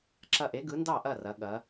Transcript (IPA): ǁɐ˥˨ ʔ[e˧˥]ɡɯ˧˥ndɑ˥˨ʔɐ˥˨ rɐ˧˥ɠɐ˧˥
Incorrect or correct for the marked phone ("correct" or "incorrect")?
correct